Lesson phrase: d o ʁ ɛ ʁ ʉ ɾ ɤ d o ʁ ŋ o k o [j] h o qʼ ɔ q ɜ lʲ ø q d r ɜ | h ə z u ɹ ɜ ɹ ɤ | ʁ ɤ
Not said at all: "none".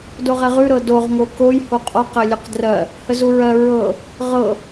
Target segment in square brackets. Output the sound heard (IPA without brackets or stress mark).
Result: j